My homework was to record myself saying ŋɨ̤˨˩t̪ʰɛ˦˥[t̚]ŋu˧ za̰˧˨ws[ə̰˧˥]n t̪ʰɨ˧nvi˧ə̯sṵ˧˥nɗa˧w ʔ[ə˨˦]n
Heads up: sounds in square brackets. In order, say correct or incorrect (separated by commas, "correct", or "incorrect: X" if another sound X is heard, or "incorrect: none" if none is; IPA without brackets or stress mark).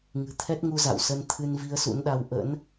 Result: correct, incorrect: ə˧, incorrect: ə̰˧˥